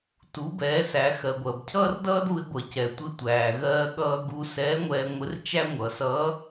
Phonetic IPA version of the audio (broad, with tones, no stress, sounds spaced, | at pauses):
t u˩˧ b ɛː˩˧ s æ˩˧ x ɜ˩ ɡʷ ɜ˩ b cʰ ʌː˥ r d ʌː˥ d β ɪ˧ ɡʷ ɜ˩ c ɛ˩ tʷ ɪ˧˥ tʷ æː˩ ɣ ɜː˧ ɠ ʌː˧ ɡ u˧ s ɛː˧˥ ŋʷ ɛː˧ ŋʷ ɪ˧˥ r t͡ʃ æ˥ ŋʷ ʌ˩˧ s ʌː˧˥